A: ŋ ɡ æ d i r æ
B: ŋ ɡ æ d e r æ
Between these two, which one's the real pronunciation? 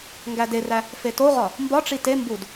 B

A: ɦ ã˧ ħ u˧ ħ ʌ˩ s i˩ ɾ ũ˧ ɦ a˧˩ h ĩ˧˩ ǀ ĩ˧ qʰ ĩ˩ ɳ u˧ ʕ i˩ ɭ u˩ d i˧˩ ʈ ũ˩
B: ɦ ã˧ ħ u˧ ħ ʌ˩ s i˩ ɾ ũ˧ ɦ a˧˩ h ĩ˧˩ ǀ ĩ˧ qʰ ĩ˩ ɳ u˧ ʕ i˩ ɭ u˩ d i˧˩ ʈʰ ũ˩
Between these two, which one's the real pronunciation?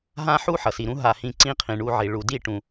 A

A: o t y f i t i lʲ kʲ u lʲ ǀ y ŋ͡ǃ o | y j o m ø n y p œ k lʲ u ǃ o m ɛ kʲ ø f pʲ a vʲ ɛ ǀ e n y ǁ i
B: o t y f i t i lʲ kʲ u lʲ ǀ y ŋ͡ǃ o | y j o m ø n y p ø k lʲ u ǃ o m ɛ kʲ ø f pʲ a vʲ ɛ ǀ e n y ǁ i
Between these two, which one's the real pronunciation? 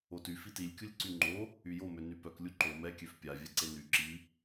A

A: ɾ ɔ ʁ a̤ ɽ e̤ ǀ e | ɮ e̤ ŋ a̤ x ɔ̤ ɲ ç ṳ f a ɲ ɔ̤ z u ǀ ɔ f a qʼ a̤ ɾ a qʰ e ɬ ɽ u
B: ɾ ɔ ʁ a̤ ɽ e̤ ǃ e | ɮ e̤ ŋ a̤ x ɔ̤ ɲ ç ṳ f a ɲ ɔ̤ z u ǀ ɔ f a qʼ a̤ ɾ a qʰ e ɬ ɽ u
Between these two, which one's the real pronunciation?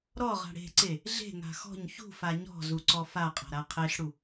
A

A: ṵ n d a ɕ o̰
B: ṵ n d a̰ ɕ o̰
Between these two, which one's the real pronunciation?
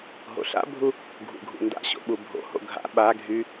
B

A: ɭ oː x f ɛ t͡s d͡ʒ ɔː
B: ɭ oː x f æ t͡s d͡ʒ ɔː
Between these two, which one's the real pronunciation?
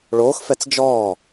A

